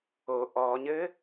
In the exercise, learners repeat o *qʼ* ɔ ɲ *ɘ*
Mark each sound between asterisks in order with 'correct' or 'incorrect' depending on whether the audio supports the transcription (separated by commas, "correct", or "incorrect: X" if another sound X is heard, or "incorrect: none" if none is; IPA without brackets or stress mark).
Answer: incorrect: ʔ, correct